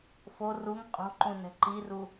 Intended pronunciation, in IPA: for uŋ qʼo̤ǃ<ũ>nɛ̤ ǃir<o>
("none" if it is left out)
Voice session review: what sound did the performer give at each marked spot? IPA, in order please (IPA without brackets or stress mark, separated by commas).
ũ, u